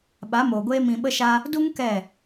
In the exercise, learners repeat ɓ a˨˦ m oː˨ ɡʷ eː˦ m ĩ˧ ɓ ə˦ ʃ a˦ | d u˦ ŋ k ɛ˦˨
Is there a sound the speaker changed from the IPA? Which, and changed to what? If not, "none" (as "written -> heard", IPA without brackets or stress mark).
none